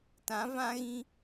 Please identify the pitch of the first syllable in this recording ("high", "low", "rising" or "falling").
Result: rising